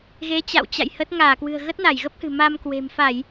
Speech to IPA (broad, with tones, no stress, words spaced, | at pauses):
ɣe˨˦t͡ɕa̰˧˨wt͡ɕa̰˧˨j hə˦˥t̚ ŋaː˧˩kwɨ̤˨˩ə̯ ɣə˦˥t̚na˧˩jɣə˦˥p̚hɨ̤˨˩ ma˧m kwe̤˨˩mfa˧˩˨j